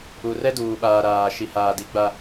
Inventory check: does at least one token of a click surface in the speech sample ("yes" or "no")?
no